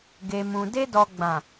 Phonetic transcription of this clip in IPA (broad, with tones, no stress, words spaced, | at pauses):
ɡe˨mũ˨ de˧dɔ˨ɡ͡bã˨